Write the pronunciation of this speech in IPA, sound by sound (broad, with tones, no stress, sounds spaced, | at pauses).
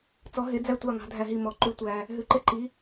t͡s ɔ˨˥ ɦ e˨˥ d͡z æ˦ tʷ ɑ˦˨ ŋ ɑ̤˨˥ dʱ æ˦˨ ɦ i˦˨ m ɔ˨˥ ǃ ʉ˦ tʷ æ˦ | ɦ ʉ˨˥ ǃ e˦ ǃ i˨˥